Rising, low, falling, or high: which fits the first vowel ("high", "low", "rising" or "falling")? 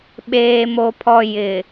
high